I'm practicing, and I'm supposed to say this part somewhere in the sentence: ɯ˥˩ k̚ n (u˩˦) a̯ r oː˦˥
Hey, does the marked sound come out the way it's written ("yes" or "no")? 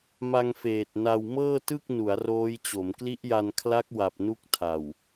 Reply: yes